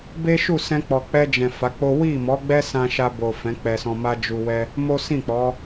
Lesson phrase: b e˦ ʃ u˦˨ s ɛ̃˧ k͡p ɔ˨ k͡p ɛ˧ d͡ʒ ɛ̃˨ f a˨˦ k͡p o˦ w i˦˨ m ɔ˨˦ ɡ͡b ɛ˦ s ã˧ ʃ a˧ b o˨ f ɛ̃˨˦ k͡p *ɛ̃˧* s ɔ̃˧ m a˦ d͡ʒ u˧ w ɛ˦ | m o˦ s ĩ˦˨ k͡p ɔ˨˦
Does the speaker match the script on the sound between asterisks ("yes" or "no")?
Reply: no